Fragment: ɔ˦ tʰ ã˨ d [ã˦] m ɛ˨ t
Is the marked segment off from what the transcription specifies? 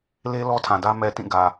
yes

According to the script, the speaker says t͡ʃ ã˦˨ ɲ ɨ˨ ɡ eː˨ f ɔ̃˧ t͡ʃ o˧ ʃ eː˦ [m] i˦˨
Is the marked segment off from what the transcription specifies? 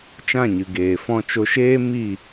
no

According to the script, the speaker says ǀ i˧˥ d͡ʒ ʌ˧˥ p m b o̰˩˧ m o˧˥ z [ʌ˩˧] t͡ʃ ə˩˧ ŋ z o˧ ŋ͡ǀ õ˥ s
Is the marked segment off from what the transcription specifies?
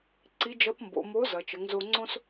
yes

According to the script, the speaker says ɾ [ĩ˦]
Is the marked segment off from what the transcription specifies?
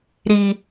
yes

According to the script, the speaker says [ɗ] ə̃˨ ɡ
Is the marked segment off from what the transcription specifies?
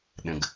no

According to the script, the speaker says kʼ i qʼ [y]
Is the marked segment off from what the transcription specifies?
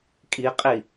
yes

